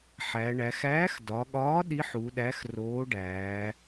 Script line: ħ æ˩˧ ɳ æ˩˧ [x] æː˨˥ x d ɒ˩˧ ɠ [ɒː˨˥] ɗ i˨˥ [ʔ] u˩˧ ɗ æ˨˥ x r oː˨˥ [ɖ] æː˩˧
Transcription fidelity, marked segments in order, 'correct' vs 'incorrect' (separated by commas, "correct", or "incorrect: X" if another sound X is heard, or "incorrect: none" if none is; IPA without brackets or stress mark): correct, correct, incorrect: ħ, correct